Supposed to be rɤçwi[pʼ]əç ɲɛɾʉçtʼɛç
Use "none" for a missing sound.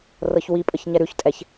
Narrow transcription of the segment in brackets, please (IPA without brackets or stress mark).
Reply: pʼ